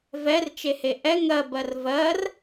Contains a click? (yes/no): no